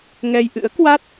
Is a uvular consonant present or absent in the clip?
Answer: absent